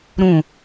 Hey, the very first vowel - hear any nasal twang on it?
yes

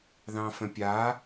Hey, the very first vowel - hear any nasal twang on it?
yes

